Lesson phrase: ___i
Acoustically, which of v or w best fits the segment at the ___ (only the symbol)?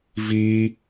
v